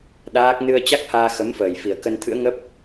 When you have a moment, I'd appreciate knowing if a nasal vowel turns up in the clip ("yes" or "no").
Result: no